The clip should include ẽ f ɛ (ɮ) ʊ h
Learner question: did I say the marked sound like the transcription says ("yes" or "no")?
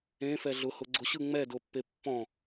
yes